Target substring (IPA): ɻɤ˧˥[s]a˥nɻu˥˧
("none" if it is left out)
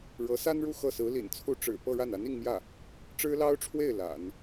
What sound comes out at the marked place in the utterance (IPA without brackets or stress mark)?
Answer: s